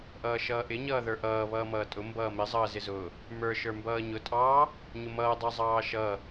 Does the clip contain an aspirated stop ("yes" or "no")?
no